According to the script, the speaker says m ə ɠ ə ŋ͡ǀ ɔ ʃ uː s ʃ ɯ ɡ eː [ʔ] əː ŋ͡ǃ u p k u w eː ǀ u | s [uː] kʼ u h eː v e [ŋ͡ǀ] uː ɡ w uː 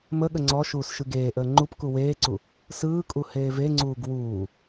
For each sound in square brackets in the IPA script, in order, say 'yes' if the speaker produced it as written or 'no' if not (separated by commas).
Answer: yes, no, yes